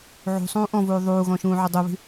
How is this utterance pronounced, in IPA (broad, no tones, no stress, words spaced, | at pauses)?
ʕṳsˤũː ʔɔ̃vuː ðˤuːɣɔ̃ ʃũːʕudˤuβi̤